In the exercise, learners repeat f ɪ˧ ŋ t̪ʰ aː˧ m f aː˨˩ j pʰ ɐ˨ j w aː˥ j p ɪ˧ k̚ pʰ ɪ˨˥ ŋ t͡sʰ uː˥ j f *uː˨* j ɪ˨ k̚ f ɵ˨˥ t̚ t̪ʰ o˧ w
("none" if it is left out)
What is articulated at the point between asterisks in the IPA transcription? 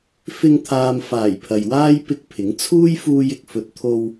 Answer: uː˧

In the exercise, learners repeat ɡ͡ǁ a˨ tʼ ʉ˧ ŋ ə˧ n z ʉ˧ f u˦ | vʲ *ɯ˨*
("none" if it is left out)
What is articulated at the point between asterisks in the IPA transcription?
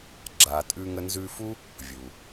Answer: u˨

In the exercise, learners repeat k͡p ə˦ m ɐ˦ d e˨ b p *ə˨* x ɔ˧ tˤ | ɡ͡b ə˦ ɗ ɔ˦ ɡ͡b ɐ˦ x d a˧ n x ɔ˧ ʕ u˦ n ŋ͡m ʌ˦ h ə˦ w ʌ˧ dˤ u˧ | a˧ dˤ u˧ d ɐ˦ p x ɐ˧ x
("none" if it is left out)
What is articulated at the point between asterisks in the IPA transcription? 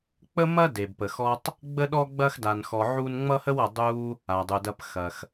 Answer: ə˨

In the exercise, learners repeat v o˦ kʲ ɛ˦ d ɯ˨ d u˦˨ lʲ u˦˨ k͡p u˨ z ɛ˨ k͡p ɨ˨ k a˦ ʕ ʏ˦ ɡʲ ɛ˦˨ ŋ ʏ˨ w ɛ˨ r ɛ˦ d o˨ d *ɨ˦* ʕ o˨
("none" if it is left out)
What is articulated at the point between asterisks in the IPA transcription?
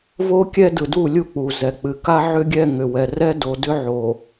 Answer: ʏ˦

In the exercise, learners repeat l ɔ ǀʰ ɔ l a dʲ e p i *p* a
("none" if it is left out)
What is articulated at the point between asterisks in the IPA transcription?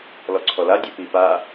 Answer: p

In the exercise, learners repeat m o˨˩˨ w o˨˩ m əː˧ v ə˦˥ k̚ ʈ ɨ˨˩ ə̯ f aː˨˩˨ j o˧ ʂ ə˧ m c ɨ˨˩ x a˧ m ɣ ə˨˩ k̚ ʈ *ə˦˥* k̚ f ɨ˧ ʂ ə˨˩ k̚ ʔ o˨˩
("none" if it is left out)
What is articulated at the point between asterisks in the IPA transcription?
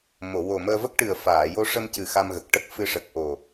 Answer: ə˦˥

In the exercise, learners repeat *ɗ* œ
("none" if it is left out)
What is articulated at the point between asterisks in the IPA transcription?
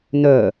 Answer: n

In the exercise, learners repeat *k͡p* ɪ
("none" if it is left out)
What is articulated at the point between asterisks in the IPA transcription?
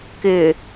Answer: k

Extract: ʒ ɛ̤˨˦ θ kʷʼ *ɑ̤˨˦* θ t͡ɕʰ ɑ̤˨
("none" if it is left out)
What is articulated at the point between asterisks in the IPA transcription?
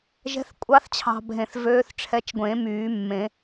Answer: ɑ˨˦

